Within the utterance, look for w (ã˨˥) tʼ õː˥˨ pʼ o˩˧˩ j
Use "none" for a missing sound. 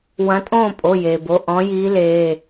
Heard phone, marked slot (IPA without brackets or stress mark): ɐ̃˨˥